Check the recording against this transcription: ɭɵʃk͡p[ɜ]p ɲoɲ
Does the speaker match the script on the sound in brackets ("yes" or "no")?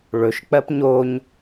yes